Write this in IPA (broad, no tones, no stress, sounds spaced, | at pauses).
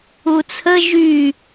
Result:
u t͡sʰ ə ʒ y